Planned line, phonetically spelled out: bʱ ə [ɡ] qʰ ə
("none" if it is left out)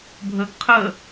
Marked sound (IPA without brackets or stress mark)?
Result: ɡ